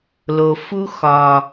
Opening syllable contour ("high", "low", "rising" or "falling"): low